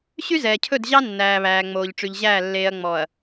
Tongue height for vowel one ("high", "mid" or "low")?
high